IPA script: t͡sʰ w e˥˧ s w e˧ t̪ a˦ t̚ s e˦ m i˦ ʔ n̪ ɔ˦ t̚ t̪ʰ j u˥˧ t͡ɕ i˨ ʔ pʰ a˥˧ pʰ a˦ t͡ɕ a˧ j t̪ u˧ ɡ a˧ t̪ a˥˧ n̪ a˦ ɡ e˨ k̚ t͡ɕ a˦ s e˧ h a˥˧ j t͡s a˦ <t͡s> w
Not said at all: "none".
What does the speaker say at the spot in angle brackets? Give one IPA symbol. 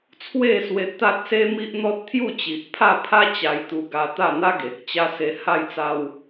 none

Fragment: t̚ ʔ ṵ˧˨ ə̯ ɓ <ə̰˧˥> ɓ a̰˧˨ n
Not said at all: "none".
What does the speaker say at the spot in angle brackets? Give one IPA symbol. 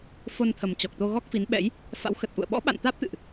ɔ̰˧˥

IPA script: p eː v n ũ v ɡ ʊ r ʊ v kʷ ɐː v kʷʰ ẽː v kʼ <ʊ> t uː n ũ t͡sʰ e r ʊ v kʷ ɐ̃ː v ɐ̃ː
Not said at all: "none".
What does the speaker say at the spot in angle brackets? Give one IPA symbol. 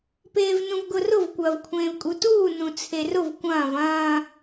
u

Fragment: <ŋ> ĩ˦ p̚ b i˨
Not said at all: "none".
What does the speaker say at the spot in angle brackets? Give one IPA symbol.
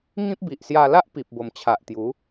ŋ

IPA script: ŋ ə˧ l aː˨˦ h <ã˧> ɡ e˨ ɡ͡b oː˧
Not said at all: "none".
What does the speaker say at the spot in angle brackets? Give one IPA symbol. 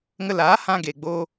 ã˧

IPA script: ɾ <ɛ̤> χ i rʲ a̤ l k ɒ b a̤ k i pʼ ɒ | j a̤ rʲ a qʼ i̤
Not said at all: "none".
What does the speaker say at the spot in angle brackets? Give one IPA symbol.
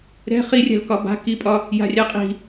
ɛ̤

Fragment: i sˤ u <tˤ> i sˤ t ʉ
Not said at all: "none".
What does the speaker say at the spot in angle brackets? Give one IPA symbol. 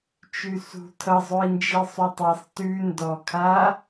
tˤ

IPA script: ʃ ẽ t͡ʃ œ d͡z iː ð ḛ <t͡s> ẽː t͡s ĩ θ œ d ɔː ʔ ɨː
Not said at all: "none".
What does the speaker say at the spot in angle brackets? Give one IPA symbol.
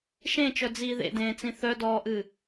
d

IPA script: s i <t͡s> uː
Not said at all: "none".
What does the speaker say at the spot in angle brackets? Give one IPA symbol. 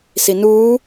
n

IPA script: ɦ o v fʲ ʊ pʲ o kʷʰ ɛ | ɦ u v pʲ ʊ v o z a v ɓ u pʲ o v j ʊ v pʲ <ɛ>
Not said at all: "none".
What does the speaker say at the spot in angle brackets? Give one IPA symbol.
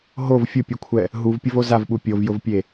e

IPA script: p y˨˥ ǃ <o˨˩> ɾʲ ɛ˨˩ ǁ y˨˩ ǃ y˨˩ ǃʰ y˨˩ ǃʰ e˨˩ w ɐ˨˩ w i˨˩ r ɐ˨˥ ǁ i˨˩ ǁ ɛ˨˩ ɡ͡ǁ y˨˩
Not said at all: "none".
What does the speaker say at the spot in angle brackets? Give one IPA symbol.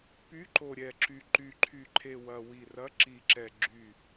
o˨˩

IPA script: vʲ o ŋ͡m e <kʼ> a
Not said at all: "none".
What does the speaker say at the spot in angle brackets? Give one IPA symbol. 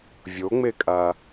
kʼ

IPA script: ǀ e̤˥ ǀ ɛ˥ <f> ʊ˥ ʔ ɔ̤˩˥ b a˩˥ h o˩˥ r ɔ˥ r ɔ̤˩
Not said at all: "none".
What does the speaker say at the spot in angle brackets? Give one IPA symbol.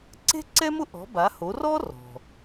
m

